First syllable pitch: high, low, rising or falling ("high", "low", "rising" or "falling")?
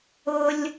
high